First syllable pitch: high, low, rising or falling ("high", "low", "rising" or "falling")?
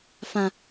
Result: high